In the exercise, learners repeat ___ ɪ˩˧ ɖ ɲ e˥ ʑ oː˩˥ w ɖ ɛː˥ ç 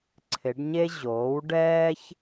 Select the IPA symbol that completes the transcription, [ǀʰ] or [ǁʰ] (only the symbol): ǀʰ